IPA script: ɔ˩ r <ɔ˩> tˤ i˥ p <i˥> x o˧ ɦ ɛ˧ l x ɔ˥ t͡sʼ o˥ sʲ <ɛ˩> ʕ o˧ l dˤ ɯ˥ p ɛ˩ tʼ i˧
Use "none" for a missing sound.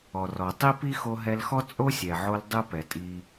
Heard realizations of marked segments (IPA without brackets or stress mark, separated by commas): ɔ˩, i˥, ɛ˩